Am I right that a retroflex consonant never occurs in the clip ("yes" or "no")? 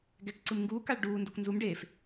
no